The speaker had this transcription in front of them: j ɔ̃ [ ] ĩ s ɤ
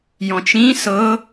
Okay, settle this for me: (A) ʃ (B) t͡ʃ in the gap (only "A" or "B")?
B